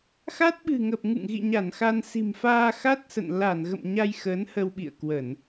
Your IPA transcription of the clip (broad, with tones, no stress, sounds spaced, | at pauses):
x a˦˥ t̚ ɓ ɨ̤˨˩ ŋ ə˨˩ p̚ ŋ ɨ̰˧˨ ŋ ɣ ḭ˧˨ ɲ a˧˩ n x a˧ n s i̤˨˩ m f aː˧ x a˦˥ t̚ s ə̰˧˨ n l a˧˩ n ɣ ə̰˧˨ m ɲ a˧ j x əː˨˦ n h ə˧ w ɓ ḭ˧˨ ə̯ k w ə˧˩˨ n